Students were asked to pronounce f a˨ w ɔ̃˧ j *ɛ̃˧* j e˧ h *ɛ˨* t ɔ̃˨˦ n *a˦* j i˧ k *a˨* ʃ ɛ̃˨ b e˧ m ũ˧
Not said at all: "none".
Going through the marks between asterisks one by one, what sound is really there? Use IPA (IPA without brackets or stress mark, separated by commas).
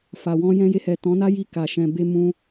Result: ɛ̃˧, ɛ˨, a˦, a˨